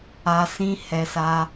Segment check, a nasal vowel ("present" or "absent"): present